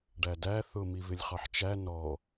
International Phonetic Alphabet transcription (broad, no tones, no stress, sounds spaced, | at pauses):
ɖ æ d æ θ ʊ m i v ɪ lʲ χ ɑ ħ t͡ʃ æ n ɔ